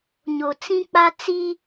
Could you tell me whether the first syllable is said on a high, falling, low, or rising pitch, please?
low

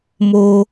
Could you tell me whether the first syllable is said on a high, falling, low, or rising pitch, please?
high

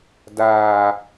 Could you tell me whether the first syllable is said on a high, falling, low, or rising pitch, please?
low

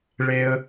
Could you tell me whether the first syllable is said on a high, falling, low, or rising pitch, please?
high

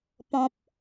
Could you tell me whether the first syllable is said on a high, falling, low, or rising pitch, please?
low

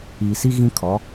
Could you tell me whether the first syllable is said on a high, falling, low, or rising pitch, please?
low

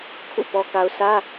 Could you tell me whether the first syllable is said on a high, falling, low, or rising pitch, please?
falling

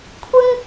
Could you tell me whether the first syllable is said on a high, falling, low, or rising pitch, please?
high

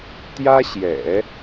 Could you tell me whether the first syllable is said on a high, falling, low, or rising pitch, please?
high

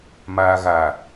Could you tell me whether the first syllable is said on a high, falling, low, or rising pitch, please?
low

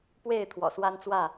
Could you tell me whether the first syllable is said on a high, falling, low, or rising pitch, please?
falling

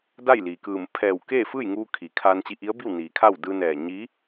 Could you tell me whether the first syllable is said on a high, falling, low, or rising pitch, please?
falling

